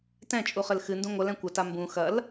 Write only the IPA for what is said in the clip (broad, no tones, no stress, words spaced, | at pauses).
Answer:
tɛ̃t͡ʃʼuχɘl xɨndũ ŋʷɐlɛ̃ kʷɐta mbũ xɐl